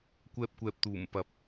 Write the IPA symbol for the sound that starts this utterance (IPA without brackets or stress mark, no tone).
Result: kʷ